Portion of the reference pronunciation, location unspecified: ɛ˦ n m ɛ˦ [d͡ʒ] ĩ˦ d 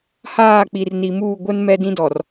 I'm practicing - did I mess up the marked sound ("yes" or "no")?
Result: yes